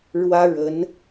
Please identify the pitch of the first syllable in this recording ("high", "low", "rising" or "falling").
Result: high